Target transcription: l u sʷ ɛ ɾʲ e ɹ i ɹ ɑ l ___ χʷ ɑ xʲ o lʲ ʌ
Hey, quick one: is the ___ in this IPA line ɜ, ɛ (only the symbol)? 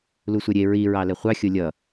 ɛ